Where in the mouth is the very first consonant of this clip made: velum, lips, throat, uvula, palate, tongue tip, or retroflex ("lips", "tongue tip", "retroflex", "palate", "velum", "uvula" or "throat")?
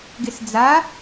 velum